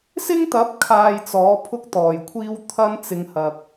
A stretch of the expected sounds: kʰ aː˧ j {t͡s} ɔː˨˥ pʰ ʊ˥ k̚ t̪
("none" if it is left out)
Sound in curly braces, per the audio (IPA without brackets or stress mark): t͡s